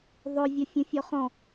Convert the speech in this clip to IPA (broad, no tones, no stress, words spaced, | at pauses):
ðˤɵ vʲɔfʲũfʲɔχɔ̃